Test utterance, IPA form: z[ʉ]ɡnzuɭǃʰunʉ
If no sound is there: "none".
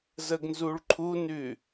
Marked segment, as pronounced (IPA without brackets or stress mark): ə